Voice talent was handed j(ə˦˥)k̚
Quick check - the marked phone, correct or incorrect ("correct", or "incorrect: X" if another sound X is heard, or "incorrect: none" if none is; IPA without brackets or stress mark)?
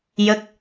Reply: correct